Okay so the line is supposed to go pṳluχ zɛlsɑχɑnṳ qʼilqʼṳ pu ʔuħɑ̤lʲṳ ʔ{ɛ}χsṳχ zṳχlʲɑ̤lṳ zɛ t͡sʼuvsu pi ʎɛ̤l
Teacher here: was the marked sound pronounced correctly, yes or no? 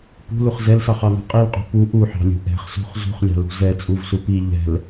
no